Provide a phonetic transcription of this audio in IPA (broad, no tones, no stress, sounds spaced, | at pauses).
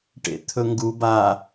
ʈ ḛ t̪ʰ ɵ ŋ ɡ u b a